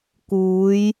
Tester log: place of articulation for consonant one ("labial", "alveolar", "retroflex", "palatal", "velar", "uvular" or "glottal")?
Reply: velar